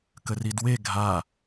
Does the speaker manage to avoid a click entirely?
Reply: yes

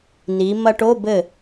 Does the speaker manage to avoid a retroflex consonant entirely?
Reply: no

